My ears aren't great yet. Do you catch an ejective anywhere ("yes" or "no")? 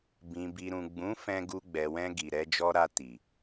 no